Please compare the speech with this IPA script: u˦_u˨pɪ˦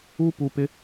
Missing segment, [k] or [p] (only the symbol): p